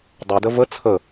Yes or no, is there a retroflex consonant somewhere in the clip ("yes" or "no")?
no